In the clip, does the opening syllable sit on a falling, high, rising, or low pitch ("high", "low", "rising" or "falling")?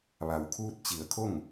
low